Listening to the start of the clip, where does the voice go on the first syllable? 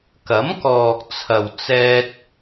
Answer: rising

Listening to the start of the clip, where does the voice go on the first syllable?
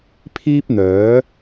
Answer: high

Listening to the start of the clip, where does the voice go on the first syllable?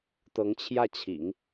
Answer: rising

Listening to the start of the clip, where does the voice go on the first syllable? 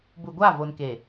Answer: low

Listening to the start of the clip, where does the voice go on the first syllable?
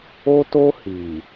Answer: high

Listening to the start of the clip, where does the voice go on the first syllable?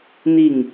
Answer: falling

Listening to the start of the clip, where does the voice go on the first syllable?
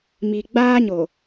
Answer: low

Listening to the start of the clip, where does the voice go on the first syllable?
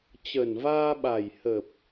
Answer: low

